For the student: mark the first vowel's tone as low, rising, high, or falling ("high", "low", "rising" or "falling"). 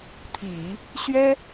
low